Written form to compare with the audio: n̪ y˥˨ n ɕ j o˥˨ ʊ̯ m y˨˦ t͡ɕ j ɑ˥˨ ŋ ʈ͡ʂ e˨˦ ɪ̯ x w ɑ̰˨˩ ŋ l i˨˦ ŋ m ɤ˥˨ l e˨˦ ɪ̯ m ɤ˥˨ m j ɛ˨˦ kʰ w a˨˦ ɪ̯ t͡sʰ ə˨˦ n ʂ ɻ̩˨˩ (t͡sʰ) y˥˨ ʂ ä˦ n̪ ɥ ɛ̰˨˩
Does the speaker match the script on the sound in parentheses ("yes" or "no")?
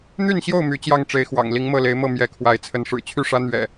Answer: no